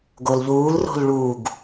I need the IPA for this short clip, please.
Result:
ɡ o l ʎ uː l r o̤ l ɭ u ɡ

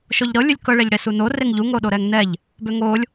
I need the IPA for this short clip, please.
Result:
ʃ o ʎ ɾ ɤ lʲ ɵ lʲ k ɤ ɭ ɛ ʎ ɽ e s u n o r e ŋ ʎ u ŋ o ɗ o ɾ ɛ ŋ n ɛ ʎ | b ø ŋ o lʲ

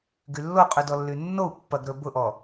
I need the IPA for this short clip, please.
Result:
ɡ y lː o qʼ y d ɔ lː y nː o u̯ pː ɐ ɡ ɾ ɵ b ʊ ʔ ɔ

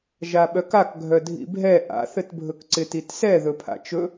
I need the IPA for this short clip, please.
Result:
ʒ a ɓ œ k a k ɡʱ œ dʱ ḭ bʱ ɛ ʔ a̰ θ ɘ t bʱ ɵ k ǀ ɪ t i t s ɛ ð ɵ pʰ a̰ t͡ʃ ɵ

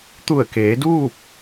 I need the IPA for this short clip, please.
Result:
t̪ u˧˩ ə̯ k eː˩˧ d uː˥˨ p̚

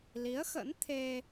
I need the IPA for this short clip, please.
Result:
l i˨˦ ə̯ x ə̰˧˥ n t̪ʰ e˧

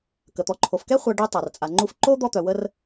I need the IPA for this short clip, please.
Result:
k ə˩ t̪ ɔ˨ ǃʰ o˩ f k ɛ˥ χʷ a˨ ɖ y˦ tˤ a˩ r t͡sʼ a˨ ŋ͡ǃ u˦ f ǃ o˥ d̪ ɔ˦ t̪ œ˨ w ə˥ r

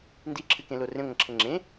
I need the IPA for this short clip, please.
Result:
n d i ǁʰ ɨ k ẽ l o r ẽ ŋʷ ɐ̃ ǁʰ ɘ ŋ͡ǁ ẽ

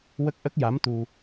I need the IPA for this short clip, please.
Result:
w ə˦˥ k̚ ʔ ə˦˥ k̚ j a˧˥ m t̪ u˧

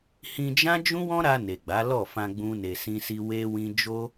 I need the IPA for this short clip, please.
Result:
h ĩ˧ d͡ʒ ã˦ d͡ʒ ũ˦ w ɔ̃˦ ɾ a˧ n e˨ ɡ͡b a˨˦ l ɔ˦˨ f ã˧ ɡ͡b ũ˦ n e˧ s ĩ˦ s i˦ w e˦ w ĩ˦ d͡ʒ o˦

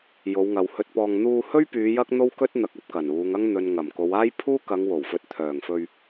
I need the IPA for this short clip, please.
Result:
j o˨˧ w ŋ ɐ˨ w h ɵ˧ t̚ p ɔː˧ ŋ n̪ uː˧ h ɵ˥ ɥ p yː˨˧ j ɐ˥ k̚ n̪ o˥ w k ɵ˥ t̚ n̪ ɐ˨˥ k̚ ɐ˧ p̚ k ɐ˨˩ n uː˨˧ ŋ ɐ˥ ŋ n̪ ɵ˨ n ŋ ɐ˨˩ m k o˨˧ w aː˥ j pʰ uː˥ k ɐ˨˧ ŋ w o˨˩ w f ɵ˨˥ t̚ t̪ʰ œː˨˩ ŋ f ɵ˧ ɥ

